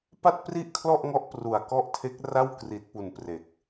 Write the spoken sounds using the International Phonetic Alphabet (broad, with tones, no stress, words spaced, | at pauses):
pa˥˩t̚pri˥˩ʔkʰlɔ˥˩ʔŋɔ˦˥ʔ pru˨˩a̯kɔ˥˩ʔ tʰe˦˥k̚ra˥˩wkri˨˩t̚pu˨˩n pre˨˩k̚